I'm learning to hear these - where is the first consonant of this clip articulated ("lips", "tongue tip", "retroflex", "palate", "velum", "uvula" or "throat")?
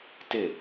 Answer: tongue tip